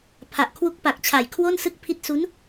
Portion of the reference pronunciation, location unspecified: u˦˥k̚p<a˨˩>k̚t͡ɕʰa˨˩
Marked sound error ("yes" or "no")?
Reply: no